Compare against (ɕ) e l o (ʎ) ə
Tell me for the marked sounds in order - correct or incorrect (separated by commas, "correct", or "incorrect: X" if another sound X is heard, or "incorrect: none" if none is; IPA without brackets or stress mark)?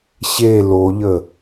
correct, correct